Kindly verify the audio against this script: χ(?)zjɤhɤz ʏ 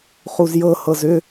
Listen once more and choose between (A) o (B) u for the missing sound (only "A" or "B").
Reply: B